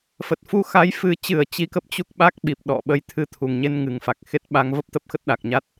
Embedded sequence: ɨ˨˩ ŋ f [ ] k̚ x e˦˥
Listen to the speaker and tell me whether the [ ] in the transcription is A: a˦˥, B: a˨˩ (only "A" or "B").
B